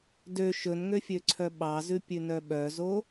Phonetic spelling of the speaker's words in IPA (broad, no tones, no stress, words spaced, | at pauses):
dø ʃɵnŋøfʲøǀʰœ ɓɑzʉpʲʉnœ ɓœzo